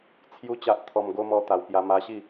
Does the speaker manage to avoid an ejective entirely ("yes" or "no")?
yes